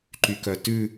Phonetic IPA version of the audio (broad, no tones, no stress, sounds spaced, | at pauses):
ǃ y k œ t ʉ